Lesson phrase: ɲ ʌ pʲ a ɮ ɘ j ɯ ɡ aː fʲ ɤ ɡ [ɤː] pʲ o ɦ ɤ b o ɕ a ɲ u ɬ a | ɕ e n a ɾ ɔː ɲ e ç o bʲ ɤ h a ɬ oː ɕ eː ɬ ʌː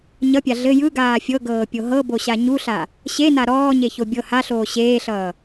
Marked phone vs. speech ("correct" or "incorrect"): correct